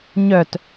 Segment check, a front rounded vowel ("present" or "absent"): present